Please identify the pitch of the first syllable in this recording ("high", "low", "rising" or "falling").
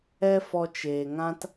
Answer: high